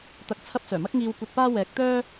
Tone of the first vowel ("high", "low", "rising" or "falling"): rising